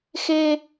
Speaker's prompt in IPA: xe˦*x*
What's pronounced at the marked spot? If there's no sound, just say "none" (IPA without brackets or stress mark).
none